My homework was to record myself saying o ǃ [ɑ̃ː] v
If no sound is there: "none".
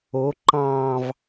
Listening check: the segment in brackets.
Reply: ɑ̃ː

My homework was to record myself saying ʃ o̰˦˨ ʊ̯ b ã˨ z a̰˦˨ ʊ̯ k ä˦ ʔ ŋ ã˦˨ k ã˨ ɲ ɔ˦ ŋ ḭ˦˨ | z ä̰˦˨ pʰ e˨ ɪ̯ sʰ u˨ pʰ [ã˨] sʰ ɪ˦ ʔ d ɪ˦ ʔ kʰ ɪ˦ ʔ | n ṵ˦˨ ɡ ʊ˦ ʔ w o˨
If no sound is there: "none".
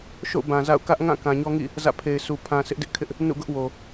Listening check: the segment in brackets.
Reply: ã˨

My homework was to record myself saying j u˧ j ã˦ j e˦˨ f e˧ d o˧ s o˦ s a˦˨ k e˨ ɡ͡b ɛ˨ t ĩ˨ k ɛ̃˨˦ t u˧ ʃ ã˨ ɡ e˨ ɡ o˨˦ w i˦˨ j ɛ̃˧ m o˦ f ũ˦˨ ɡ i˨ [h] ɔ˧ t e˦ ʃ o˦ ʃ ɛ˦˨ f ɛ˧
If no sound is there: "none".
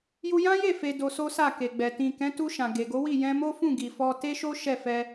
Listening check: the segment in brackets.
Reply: f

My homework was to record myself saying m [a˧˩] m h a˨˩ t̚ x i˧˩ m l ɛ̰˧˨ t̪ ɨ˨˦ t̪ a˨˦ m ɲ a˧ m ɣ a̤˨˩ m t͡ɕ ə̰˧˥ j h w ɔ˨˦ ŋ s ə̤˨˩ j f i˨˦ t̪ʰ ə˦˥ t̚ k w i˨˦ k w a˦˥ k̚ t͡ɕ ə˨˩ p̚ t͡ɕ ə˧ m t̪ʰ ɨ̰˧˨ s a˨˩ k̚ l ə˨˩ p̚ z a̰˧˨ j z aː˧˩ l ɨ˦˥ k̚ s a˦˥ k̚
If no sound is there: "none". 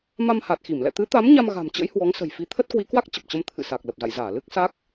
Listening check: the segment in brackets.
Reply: a˧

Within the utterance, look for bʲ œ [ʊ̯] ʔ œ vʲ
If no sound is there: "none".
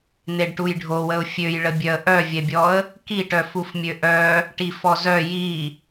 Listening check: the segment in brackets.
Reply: ə̯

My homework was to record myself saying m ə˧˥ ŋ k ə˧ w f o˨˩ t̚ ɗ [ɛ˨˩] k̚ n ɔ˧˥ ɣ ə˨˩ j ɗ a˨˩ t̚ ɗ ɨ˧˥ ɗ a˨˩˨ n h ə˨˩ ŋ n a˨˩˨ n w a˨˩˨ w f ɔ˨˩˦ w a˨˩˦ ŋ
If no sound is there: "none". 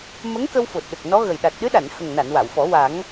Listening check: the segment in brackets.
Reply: ə˨˩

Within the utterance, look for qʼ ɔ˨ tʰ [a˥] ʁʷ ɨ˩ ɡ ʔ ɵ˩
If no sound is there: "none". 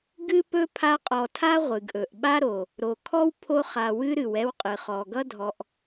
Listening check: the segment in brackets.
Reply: a˥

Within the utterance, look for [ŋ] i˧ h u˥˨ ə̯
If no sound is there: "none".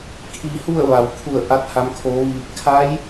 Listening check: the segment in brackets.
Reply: kʰ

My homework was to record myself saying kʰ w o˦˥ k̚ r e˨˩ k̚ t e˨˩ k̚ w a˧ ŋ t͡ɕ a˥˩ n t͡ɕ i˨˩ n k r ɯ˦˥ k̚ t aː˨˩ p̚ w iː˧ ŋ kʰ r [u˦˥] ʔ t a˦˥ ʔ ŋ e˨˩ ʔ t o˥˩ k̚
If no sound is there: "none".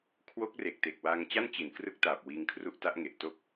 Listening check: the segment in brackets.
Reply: u˦˥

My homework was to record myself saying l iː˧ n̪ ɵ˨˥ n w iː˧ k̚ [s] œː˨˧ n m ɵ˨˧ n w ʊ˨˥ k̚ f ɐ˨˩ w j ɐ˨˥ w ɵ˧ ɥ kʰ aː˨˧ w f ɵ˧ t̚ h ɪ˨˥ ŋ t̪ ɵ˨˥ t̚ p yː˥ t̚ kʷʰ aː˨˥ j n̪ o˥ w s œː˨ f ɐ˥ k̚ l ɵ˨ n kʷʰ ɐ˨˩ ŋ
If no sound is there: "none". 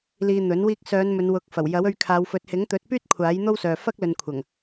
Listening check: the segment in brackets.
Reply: s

